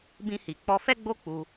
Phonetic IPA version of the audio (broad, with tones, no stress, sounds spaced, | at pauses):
b ĩ˧ h i˨ k͡p ɔ˧ f ɛ˦ ɡ͡b o˦ k͡p u˧